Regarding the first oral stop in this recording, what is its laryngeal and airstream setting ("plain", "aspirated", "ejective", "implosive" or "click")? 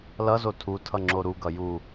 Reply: aspirated